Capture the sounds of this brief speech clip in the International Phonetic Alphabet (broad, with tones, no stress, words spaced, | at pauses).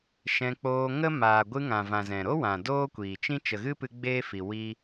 ʃɛ̃˧k͡poː˧ŋə˦ maː˨ɡʷɨ˧ŋã˨ vã˨zɛ̃˨ ɾo˦wã˨ doː˦kʷiː˨t͡ʃĩ˦ t͡ʃə˨ɣɨ˦pɨ˧ ɡ͡beː˦fi˨ wi˦